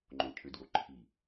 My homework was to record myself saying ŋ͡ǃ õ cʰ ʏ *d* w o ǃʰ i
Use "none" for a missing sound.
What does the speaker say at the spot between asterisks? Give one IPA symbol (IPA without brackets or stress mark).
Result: d